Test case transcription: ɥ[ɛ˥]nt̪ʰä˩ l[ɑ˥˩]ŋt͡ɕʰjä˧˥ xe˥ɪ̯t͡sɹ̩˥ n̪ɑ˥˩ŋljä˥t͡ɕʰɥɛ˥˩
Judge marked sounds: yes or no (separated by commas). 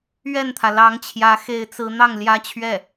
no, no